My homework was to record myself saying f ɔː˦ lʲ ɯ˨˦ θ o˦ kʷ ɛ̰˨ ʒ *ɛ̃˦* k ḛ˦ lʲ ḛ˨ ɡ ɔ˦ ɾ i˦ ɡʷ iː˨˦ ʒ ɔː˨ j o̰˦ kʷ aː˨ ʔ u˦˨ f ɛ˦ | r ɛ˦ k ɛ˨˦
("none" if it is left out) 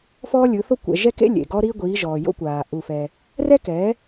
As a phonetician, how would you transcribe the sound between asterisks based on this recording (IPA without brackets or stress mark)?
ɛ˦